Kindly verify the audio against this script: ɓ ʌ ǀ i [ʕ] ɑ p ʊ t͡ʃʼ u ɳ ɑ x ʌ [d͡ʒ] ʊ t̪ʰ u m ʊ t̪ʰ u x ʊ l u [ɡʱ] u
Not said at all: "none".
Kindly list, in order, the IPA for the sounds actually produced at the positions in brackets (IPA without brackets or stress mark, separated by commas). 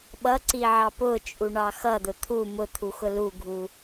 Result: ʕ, d̪, ɡʱ